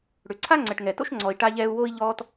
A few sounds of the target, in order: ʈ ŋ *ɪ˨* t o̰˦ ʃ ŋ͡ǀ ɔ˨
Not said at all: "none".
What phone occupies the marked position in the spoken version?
ɛ˨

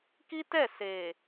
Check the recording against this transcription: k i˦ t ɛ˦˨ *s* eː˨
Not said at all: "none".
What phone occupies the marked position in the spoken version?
s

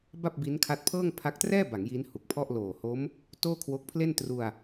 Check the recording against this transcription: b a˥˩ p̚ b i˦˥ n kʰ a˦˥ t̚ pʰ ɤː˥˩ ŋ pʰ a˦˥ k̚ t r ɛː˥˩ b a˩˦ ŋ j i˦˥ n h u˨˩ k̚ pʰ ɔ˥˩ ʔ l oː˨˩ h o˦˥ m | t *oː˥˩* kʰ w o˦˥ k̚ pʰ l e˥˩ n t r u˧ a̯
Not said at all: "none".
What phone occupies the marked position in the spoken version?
oː˥˩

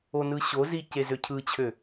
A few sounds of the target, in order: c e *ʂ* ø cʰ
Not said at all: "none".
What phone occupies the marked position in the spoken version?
z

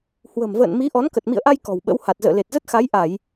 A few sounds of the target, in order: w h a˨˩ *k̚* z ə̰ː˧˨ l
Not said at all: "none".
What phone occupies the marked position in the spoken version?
t̚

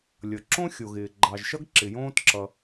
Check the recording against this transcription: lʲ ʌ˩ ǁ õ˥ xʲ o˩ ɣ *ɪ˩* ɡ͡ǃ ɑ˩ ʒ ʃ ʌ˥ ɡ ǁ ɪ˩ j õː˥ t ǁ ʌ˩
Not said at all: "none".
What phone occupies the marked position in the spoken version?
ɪː˩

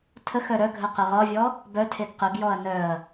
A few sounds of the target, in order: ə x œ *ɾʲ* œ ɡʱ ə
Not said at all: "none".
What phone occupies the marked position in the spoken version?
ɾ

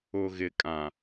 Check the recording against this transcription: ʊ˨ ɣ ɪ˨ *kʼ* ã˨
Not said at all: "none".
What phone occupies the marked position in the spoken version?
kʼ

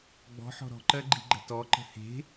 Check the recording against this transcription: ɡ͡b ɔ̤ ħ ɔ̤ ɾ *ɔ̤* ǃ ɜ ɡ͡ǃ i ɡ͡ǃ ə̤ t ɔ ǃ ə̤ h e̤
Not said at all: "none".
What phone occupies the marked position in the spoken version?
ɔ̤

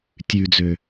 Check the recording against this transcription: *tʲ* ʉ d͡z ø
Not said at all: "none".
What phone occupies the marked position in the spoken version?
tʲ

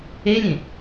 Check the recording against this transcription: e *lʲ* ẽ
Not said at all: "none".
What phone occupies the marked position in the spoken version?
lʲ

